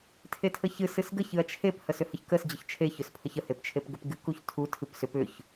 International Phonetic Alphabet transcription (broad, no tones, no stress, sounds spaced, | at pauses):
tʰ e tʰ ə ç ɨ s ɨ s ɡ ə ç ɨ ɐ̯ t͡ʃʰ e p h ə s ʏ h ə ç k ə s d͡ʑ ə ç t͡ʃʰ e ç ʏ s pʰ ə ç ə h e p t͡ʃʰ e p ɡ ə p ɡ ɨ k u ç tʰ u tʰ ɨ p s ʏ p ʏ ç